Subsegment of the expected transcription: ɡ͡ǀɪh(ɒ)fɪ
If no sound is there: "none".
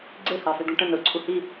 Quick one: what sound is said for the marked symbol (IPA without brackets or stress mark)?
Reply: ɑ